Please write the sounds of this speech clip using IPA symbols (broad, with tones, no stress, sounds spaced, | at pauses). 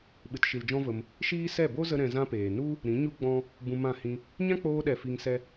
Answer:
ɓ ɨ˨ t ʃ i˨ l d͡ʒ ɔ̃˦ v ə˧ m | ʃ iː˦ s ɛ˦˨ b o˦ z ə˧ ɾ ɛ̃˧ z ã˦ p eː˨ n u˦ | ɾ ĩ˨˦ ɲ u˦ ɡ͡b ɔ̃˦ | b ũ˧ m ã˦˨ h ĩ˦ | ɲ ã˦ k͡p oː˧ ɗ ɛ˨ f i˧ ŋ s ɛ˦